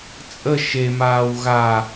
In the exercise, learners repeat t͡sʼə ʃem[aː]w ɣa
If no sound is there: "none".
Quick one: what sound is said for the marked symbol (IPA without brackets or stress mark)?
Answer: aː